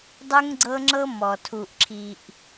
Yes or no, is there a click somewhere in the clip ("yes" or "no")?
yes